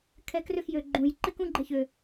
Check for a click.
present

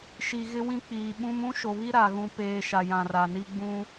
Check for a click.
absent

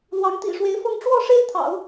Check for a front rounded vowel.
absent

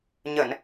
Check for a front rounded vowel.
absent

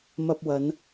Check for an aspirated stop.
absent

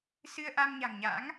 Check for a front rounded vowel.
absent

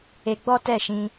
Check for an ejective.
absent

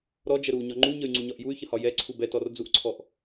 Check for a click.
present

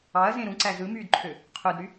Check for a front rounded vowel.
present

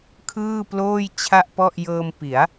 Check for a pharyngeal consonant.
absent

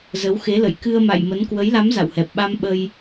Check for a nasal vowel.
absent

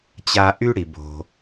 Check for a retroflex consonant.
present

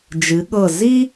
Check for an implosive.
present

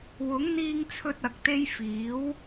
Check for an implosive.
absent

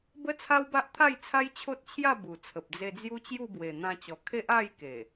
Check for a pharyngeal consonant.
absent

